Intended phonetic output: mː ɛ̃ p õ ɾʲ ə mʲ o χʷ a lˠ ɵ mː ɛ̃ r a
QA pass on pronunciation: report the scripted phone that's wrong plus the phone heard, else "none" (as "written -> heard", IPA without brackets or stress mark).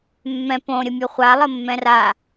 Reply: ɵ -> ə